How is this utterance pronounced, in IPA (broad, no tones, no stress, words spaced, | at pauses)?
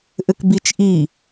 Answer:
ʔɘkbit͡ʃ ʔi